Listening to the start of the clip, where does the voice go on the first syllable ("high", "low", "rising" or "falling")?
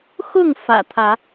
falling